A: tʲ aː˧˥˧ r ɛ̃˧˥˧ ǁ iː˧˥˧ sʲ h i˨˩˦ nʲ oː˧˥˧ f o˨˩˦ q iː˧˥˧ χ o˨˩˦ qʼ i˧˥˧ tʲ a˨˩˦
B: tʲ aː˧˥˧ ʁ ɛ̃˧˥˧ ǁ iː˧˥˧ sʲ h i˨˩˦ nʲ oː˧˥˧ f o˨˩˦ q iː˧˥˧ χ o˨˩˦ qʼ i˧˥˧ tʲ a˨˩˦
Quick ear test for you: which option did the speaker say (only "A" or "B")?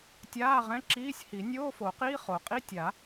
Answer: B